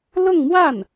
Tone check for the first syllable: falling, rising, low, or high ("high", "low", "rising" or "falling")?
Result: falling